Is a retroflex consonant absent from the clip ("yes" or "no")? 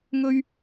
yes